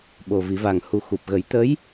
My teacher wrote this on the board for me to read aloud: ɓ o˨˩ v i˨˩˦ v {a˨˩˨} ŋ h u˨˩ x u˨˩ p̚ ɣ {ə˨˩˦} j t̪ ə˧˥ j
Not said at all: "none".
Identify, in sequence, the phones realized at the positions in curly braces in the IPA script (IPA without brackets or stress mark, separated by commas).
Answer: a˨˩, ə˨˩˦